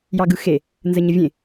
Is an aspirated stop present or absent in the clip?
absent